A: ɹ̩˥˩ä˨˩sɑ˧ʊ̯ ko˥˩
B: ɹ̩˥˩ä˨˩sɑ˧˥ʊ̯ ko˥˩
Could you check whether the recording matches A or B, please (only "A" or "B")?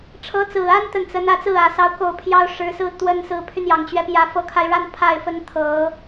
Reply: B